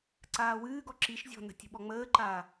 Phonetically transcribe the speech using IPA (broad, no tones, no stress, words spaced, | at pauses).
ǀaːwɨːɡɔ ǁiʃ zʲɔ̤nə̤ tʲə̤ɓɔŋ͡məːǃaː